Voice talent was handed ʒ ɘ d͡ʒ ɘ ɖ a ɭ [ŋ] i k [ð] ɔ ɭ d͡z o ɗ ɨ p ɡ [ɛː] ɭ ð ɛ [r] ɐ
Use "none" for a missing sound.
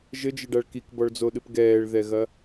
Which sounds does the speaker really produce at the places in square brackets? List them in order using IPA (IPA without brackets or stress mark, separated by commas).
k, b, ɛː, ɣ